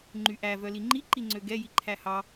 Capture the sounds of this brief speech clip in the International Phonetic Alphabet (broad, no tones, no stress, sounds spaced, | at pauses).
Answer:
ŋ͡ǃ y ʔ æ v œ l i ŋ͡ǃ i ǃ i ŋ͡ǀ ø ɡ ɛ j i ǃʰ æ h ɑ